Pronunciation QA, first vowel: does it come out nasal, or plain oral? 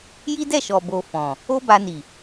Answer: oral